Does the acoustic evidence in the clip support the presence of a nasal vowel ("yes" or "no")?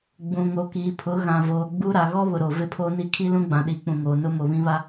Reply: yes